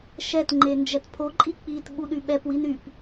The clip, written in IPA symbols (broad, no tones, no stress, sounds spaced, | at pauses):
ʃ ɛ t ŋ͡ǃ e n d͡ʒ ɛ t pʰ o ǃʼ i k͡p i t ɓ u ɗ y ɓ ɛ p w i n y p